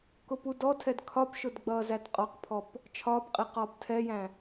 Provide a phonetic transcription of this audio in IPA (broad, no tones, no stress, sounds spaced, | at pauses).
k ʊ p u d ɔ tʰ ɛ d kʰ ɒ p ʃ ʊ d ɡ͡b ʌː z æ t qʼ ɒ q pʰ ɔ p | t͡ʃʰ ɒː p qʼ i q ɒː p tʰ ɛ j æ̃